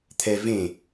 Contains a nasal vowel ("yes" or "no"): yes